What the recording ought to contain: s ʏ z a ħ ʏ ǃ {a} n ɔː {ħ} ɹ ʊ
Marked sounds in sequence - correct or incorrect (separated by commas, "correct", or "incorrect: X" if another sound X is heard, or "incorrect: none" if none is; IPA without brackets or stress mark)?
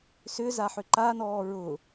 correct, incorrect: none